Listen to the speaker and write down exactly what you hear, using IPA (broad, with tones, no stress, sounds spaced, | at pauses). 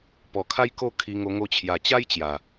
p ɔ˨˩ kʰ a˦ j k o˥˧ kʰ i˧ ŋ o˧ ŋ o˧ t͡ɕʰ j a˨˩ t͡ɕ a˦ j t͡ɕ j a˨˩